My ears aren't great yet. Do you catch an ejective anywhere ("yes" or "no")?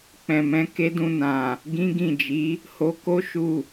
no